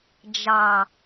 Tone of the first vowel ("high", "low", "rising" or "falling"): low